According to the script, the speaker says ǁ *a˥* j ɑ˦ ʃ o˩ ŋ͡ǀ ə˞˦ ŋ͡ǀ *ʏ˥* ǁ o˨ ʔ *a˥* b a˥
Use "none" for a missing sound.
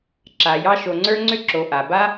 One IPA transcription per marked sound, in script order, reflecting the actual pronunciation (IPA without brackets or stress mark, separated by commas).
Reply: a˩, ʏ˥, a˩